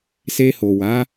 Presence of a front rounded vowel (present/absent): absent